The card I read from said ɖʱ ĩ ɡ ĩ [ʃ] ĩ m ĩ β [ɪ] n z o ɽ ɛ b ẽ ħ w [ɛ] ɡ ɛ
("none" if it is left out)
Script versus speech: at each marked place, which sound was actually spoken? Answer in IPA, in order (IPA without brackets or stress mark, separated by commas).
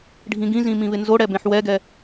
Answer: z, ɪ, ɛ